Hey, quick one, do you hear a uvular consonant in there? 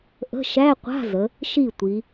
yes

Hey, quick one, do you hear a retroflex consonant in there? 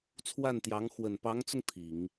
no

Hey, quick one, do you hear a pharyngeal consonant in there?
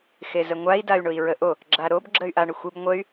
no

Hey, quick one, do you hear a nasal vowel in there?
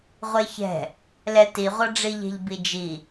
no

